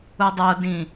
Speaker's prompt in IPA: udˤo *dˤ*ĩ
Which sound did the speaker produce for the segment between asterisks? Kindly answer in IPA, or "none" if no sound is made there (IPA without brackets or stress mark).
d